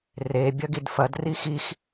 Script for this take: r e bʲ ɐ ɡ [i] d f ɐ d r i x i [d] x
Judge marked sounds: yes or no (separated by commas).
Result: yes, no